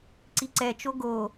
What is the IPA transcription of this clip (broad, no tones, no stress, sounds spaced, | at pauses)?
ǀ i ǀ ɛ t͡ʃ o ɡ o